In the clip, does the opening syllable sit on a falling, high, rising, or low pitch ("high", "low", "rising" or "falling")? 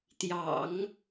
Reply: low